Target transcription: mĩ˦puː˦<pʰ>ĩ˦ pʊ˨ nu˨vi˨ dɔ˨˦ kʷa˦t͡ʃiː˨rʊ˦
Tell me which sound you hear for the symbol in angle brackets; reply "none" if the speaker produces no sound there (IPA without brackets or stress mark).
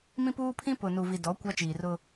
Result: pʰ